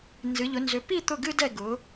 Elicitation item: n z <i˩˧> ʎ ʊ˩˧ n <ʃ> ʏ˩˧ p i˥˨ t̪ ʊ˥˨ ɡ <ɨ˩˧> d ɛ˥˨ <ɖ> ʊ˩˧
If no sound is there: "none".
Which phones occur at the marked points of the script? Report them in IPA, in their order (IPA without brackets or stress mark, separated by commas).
ɨ˩˧, z, ɨ˥, ɡ